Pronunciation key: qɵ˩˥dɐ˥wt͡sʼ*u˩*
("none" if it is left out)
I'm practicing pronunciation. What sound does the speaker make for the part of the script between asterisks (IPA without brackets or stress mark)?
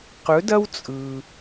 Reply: ɯ˩